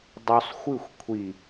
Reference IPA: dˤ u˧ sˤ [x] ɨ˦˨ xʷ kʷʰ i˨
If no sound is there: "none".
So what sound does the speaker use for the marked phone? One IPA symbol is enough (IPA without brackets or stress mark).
xʷ